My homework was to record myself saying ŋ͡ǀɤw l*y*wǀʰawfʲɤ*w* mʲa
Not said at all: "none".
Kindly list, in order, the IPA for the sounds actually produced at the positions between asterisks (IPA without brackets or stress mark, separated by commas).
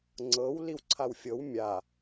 i, w